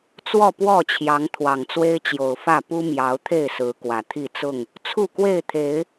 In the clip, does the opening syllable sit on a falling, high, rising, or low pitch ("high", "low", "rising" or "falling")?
falling